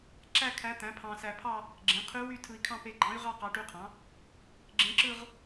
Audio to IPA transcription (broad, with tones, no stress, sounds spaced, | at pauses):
ǁ æ˥˧ kʰ æ˧˥ t̪ æ̃˩˥ pʰ ɑ̃˧ s æ˧ pʰ ɑ˥˧ | ɡ͡ǁ ẽ˩˥ qʰ y˧˥ w y˥˧ tʰ ɯ˧ i̯ kʰ ɑ̃˥˧ p e˧ ɡ͡ǃ ɑ̃˧˥ y̯ ʁ ɑ˥˧ q ɑ˧˥ ʈ y˧˥ qʰ ɑ̃˩˥ | ɡ͡ǁ ẽ˧˥ ǁ ɯ˥˧ ʁ